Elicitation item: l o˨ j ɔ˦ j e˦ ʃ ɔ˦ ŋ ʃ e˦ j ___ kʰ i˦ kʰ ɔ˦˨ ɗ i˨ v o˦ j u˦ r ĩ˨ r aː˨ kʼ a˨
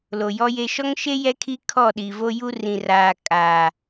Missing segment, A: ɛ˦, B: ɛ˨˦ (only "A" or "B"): A